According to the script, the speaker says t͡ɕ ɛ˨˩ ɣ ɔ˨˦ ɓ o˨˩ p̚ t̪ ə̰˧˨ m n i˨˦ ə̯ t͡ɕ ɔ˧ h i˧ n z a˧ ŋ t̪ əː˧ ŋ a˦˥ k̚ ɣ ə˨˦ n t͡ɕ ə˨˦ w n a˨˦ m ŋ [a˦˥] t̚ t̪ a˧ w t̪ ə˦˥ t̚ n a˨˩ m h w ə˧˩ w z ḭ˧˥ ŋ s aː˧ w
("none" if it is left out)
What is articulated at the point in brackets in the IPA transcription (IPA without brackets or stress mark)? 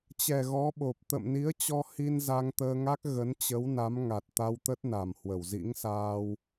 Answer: a˨˩